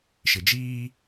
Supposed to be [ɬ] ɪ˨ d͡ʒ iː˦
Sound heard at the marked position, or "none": ʃ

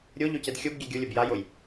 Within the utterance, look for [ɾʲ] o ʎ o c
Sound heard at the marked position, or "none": ɾʲ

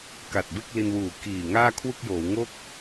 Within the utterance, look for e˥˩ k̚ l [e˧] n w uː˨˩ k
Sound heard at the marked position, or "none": i˧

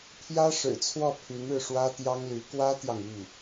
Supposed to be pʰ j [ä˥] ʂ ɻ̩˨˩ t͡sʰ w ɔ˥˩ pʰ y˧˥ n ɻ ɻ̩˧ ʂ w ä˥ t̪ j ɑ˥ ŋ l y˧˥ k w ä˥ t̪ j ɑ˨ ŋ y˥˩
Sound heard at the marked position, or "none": ä˥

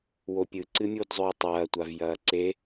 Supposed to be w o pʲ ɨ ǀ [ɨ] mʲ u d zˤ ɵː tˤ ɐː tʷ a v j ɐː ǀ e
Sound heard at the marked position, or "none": ɨ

